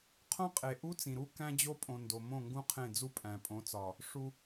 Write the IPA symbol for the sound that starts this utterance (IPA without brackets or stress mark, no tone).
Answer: qʰ